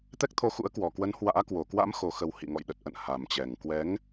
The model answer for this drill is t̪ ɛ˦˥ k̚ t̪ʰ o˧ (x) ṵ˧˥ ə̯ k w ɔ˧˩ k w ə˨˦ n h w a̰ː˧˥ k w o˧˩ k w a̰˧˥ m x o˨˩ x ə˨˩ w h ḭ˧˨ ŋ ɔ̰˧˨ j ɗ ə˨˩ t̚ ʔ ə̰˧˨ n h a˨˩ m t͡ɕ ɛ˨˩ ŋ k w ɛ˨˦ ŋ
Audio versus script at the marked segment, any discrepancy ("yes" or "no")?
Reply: no